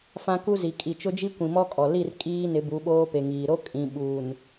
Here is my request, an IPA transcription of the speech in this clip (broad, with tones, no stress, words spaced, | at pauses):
fã˦ku˦zi˨ kʼi˨t͡ʃʊ˦d͡ʒi˦ kʷĩ˨mɔ˦kʼɔ˨ li˦˨r kʼiː˦ nɪ˨˦bu˨˦ ɓoː˦pe˨ŋiː˨ ɾo˦ kʼĩ˨ɓuː˨n